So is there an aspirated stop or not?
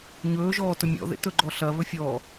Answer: no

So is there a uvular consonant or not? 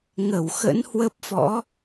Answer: no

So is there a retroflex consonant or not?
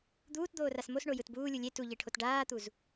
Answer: yes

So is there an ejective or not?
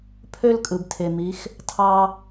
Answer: yes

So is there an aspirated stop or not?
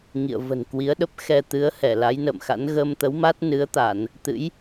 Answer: no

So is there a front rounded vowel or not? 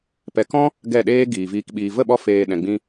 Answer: no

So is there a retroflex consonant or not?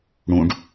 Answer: yes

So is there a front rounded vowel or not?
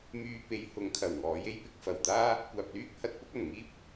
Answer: yes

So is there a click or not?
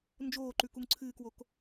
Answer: yes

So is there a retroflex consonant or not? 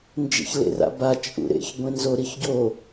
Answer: no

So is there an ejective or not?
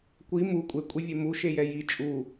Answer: yes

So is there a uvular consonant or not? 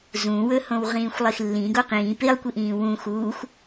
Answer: yes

